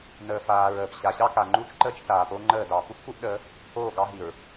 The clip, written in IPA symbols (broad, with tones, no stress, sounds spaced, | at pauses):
n əː˨ f aː˨ ɹ əː˨ p ɕ a˨ ɕ ɑ˦ k a˨ ŋ͡ǃ u˦ t͡ʃ ǃ əː˦ t͡ʃ θ aː˨ p o˦ ŋ͡ǃ əː˦˨ d ɑ˨ p u˦ p k u˦ ʔ ɗ əː˨˦ | oː˦˨ ɡ ɑ˦ ɦ i˨ ɹ